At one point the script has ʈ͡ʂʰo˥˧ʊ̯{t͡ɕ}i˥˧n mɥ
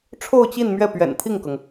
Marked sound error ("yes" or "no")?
no